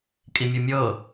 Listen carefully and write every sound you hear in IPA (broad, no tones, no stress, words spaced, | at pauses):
kʼimʲumʲɤ